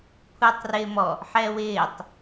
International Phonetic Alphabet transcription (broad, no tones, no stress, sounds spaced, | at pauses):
kʷʰ ɪː tˤ r ɪː m ɔ | ħ ɛː w ɪː tˤ